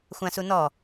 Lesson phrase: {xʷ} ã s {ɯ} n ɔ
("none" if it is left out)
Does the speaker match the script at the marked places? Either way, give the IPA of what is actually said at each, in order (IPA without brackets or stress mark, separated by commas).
xʷ, u